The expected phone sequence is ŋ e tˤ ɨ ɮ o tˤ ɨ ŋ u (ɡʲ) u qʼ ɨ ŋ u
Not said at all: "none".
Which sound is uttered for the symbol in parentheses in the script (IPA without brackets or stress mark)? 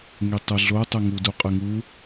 d